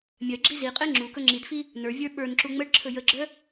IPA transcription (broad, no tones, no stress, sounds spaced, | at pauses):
mʲ œ ɡ͡ǁ i z i qʼ e ŋ͡ǁ u k ɵ ŋ͡ǁ i d f i | n ə˞ vʲ ə˞ ɓ ə˞ n ǁ u ŋ͡m ə ɖ ǁʰ ɵ j ə ɡ͡ǁ œ